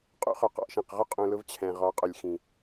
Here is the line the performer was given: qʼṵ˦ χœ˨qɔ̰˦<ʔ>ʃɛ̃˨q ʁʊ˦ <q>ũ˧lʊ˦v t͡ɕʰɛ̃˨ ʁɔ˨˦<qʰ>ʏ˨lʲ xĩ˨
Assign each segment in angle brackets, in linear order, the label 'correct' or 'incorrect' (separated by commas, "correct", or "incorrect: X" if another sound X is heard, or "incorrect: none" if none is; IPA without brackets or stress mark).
correct, incorrect: qʼ, incorrect: qʼ